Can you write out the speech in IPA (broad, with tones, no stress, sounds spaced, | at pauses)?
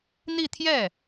n̪ i˥˧ t̪ʰ j ɛ˥˩